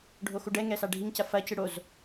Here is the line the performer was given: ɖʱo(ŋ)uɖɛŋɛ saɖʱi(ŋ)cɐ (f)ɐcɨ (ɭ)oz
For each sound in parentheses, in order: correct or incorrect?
incorrect, correct, correct, incorrect

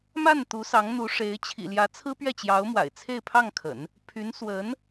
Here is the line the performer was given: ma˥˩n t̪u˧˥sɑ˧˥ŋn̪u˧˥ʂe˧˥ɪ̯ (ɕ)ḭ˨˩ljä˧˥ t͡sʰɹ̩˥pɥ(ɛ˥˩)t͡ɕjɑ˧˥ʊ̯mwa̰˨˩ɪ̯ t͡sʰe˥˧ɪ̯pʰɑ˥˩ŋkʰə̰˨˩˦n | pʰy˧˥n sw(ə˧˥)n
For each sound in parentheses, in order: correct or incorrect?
incorrect, correct, correct

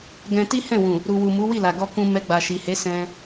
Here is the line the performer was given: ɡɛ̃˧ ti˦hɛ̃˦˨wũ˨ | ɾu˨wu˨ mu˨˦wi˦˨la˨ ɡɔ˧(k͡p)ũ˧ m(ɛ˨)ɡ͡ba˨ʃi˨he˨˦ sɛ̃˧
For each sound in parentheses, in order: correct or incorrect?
incorrect, incorrect

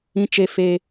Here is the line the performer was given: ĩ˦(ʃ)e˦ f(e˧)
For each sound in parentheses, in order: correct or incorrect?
incorrect, correct

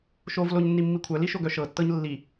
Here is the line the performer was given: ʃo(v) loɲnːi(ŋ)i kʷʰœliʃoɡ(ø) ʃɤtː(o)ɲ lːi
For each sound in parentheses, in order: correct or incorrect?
correct, incorrect, incorrect, incorrect

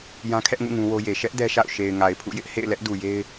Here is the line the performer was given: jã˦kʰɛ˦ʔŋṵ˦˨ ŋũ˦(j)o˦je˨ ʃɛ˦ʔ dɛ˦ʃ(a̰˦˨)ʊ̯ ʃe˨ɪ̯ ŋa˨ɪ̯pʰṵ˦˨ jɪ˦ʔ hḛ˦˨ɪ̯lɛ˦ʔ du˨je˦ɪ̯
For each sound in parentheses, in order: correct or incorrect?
incorrect, correct

